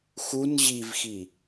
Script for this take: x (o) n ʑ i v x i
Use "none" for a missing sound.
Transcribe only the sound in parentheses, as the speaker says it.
u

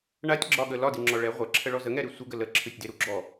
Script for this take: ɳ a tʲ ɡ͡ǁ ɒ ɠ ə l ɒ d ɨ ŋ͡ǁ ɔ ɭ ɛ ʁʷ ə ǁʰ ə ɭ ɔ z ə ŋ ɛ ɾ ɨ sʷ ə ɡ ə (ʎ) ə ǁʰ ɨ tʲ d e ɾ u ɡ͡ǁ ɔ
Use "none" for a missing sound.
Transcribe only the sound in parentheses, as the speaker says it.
l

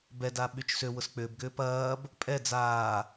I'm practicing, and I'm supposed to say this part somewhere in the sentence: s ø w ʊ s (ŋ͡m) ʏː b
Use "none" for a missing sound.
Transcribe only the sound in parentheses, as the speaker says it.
k͡p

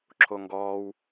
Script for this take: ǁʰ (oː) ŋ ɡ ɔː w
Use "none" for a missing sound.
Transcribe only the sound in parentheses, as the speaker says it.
o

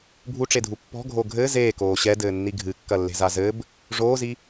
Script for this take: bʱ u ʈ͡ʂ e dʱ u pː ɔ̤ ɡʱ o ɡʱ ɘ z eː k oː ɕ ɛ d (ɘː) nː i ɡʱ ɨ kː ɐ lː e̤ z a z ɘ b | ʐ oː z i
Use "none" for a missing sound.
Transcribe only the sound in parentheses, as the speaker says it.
ɘː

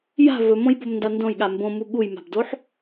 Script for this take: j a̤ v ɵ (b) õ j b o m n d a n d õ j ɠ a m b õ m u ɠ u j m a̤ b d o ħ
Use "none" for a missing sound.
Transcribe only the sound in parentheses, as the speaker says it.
m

